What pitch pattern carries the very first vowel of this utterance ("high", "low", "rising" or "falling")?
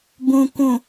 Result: low